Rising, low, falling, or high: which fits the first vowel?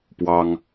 high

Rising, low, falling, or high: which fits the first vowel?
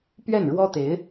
falling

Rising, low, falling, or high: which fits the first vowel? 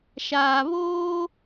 low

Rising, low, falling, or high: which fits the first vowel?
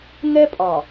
high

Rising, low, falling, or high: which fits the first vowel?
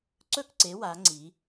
falling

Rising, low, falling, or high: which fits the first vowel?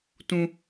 high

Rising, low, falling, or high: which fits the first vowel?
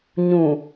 low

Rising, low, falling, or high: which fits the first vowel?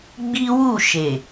high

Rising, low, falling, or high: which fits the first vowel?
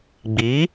rising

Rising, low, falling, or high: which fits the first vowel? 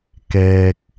low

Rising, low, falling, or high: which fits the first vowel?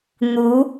rising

